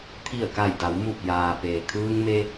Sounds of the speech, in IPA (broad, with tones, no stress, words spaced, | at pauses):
t̪ʰi˧˩ə̯ka˧˩jda˩˧w mu˧˩p̚jaː˩ peː˩ kʰɯː˧ŋme˧